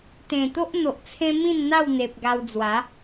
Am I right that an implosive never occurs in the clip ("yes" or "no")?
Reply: yes